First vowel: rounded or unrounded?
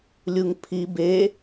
rounded